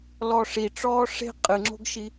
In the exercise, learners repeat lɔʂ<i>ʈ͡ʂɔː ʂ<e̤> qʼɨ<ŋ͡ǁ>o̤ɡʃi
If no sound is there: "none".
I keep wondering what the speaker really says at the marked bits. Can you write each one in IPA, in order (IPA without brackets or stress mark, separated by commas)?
i, e̤, ŋ͡ǁ